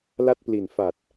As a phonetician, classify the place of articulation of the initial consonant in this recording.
alveolar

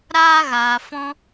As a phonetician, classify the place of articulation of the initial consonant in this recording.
alveolar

